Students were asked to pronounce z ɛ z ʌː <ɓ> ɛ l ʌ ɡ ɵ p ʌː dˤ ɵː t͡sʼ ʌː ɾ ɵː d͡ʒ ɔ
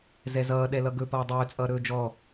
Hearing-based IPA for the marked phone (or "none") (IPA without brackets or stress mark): ɗ